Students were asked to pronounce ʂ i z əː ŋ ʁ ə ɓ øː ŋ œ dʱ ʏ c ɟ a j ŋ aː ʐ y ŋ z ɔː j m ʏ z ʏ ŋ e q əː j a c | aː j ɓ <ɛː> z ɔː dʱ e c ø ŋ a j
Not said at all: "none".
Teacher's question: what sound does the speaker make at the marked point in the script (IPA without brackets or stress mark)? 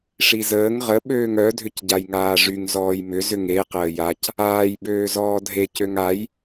øː